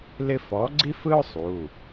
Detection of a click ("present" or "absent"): present